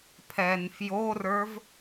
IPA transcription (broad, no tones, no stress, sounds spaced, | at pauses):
pʰ ɛ n f j o r ə˞ v